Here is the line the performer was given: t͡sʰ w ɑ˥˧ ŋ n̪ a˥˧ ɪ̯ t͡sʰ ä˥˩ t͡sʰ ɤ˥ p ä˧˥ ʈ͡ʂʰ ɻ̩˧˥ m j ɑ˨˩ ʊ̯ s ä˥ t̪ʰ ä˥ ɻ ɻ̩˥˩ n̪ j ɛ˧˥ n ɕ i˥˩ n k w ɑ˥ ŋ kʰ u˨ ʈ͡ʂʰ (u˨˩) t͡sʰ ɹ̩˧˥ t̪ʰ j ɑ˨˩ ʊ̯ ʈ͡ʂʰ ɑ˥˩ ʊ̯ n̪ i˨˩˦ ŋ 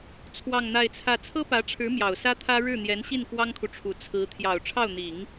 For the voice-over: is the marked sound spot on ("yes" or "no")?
yes